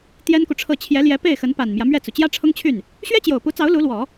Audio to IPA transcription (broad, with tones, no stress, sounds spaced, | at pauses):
t̪ j ɛ˥ n k u˨ ʈ͡ʂʰ ɤ˥˩ t͡ɕʰ j ɛ˧˥ l j ɛ˧˥ p e˥˩ ɪ̯ x ə˧˥ n p a˨˩ n m j ä˦ m ɥ ɛ˥˩ t͡s u˩ t͡ɕ j ä˥ ʈ͡ʂʰ ʊ˥ ŋ t͡ɕʰ y˥˩ n | ɕ ɥ ɛ˥ t͡ɕ j o˨˩ ʊ̯ p u˧˥ t͡s ɑ˧˥ ʊ̯ l u˧˥ l w ɔ˨˩˦